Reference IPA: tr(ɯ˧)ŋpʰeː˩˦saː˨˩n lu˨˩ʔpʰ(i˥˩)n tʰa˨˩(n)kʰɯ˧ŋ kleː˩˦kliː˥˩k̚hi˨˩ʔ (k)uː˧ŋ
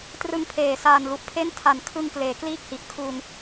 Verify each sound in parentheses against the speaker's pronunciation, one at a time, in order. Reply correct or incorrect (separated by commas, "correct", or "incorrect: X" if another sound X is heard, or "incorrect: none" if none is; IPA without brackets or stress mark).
correct, incorrect: e˥˩, correct, incorrect: kʰ